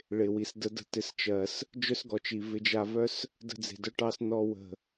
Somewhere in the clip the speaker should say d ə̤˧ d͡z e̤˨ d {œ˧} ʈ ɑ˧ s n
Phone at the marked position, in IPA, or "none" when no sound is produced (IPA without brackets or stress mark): œ˧